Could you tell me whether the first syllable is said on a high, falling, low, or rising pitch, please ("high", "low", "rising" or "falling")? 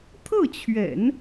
falling